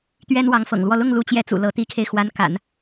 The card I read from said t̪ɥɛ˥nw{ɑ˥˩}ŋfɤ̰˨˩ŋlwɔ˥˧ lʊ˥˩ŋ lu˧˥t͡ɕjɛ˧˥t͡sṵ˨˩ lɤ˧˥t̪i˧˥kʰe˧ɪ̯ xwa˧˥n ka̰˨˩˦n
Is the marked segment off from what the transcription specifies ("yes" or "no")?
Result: yes